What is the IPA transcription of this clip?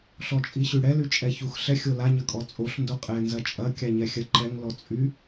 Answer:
ɬɔt͡ʃʼiɕyɽɛ lyt͡ʃʼɛçux ɬɛxʲola ɲɐkʼɔt͡sʼoɬ ndoqʼɛ nzɐt͡ʃʼɐ kʲaɲɛxʲɐǃɛŋ lɔt͡sʼy

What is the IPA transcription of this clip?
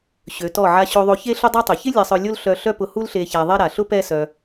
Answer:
ɕø˨˦tɔ˦˨ ʕa˧ɕo˧ðˤo˧çe˦ ɬʊ˦dˤa˦tˤɪ˨ çɪ˦ lʲɛ˧sˤœ˧ lʲo˦l ɬœ˧ɬœ˦pʊ˧ hu˦lɬe˧ ça˧ðˤɛ˦ ɾa˨ ɬʊ˦ pɛ˦sœ˧

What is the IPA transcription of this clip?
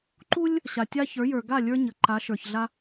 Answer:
ǃu˦lʲ | ɕa˨tʲa˦çə˞˨˦jə˞˨ ɡa˦˨ lʲə˞˦ ɲə˨ǃa˨˦ ʃə˞˨çɮa˦

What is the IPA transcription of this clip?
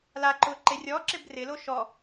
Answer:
la ǃʊ ǃerʲɔ ǁɪbrɪlo ʃɔ

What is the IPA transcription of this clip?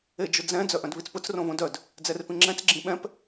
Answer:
ed͡ʒʊd͡zɛ̃ d͡zœʔœ̃dβit͡spʊt͡s rõβõdœd | d͡zɛrpĩŋ͡ǁɛ̃t͡s ɡ͡ǁĩɓɛ̃p

